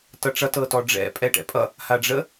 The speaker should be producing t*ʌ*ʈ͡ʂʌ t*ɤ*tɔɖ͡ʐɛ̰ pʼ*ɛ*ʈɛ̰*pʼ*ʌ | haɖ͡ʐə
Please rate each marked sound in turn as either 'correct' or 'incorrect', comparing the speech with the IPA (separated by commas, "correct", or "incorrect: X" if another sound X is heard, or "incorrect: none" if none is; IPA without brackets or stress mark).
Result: correct, correct, correct, correct